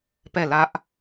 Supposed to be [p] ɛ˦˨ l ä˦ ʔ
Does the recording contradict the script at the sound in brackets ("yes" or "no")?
no